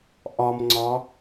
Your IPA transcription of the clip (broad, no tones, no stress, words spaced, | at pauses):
ʔɒmŋ͡ǀɒ